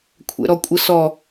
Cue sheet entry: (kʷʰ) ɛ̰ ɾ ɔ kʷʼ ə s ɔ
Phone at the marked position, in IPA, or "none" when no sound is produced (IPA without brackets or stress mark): kʷʰ